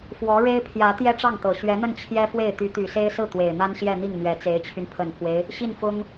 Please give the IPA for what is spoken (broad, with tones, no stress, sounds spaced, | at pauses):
f w ɔ˧˥ ɻ e˥ ɪ̯ pʰ j ä˧˥ t̪ j ɛ˥ ʈ͡ʂ ɑ˥˩ ŋ t̪ ɤ˨˩ ɕ ɥ ɛ˧˥ n̪ ə˥˩ n t͡ɕʰ j ɛ˥ f w e˥˩ ɪ̯ t̪ y˧˥ t̪ y˨˩ s e˥ ɪ̯ s ɹ̩˥˩ t̪ w e˨˩ ɪ̯ n̪ a˥ n ɕ j ɛ˥˧ n̪ i˥˩ ŋ n̪ ɥ ɛ˧˥ t͡s e˧˥ ɪ̯ t͡ɕʰ y˧ n pʰ ə˨˩ n pʰ w e˦ ɪ̯ | ɕ i˥˩ n f ʊ˥ ŋ